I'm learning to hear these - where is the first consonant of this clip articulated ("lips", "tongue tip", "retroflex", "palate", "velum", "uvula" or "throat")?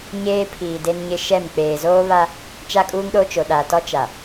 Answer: palate